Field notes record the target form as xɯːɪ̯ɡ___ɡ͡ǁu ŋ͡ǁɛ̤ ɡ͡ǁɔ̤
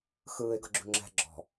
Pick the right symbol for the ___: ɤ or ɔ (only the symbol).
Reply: ɤ